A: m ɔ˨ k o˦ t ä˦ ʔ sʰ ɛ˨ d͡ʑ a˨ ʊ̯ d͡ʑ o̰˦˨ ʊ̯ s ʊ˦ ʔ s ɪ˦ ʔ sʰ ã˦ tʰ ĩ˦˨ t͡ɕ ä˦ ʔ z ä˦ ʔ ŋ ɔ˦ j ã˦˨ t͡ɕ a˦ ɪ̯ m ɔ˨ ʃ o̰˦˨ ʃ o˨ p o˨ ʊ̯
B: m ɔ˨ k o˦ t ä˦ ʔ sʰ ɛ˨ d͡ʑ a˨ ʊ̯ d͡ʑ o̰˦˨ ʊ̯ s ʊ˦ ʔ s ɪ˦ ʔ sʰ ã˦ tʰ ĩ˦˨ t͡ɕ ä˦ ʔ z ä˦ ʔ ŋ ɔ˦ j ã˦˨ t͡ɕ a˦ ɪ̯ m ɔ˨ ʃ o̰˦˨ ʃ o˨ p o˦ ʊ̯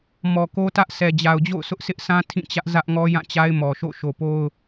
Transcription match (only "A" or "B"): B